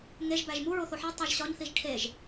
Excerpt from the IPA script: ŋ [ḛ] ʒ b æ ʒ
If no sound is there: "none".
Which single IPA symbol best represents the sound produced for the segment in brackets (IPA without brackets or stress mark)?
e